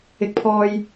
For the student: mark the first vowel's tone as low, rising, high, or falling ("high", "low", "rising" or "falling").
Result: high